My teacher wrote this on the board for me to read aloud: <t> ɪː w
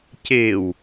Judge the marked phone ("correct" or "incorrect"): incorrect